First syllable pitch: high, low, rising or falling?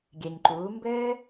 low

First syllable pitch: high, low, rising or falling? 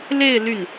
falling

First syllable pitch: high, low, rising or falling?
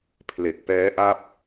low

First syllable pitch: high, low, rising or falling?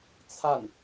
falling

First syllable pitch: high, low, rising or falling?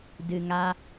low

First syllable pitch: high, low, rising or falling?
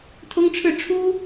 high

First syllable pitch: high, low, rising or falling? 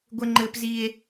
high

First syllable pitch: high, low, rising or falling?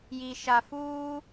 low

